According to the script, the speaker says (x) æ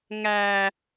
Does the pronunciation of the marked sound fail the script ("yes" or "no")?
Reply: yes